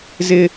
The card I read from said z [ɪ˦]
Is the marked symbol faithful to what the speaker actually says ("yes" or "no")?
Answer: yes